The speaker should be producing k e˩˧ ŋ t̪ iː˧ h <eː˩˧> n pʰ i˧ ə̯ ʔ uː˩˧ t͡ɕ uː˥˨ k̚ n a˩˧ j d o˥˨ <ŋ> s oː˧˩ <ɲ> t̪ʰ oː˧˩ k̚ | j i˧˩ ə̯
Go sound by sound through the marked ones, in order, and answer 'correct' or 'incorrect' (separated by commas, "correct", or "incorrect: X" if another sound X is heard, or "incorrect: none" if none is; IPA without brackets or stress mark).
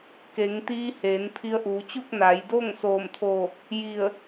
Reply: correct, correct, incorrect: m